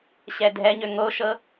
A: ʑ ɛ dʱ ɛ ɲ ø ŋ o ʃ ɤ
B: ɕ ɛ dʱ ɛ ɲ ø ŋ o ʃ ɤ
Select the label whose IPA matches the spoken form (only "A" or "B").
B